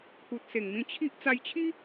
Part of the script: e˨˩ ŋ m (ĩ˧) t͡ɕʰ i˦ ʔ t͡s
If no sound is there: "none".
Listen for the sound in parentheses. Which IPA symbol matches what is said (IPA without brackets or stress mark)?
ĩ˧